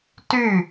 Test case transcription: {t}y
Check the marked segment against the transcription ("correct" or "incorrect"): correct